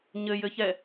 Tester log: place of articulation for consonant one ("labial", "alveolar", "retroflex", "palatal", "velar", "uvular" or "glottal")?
palatal